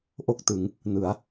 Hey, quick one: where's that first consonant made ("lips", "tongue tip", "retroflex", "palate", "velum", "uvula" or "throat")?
throat